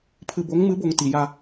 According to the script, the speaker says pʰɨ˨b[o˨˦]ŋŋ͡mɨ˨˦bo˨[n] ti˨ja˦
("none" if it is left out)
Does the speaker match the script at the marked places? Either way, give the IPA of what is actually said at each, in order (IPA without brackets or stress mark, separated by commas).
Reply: o˨˦, ŋ